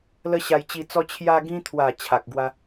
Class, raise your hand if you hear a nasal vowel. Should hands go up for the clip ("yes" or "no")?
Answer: yes